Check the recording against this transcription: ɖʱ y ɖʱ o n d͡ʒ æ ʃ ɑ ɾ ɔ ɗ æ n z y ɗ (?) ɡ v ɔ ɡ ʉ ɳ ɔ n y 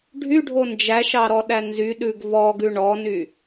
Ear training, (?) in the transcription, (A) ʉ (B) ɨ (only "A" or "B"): A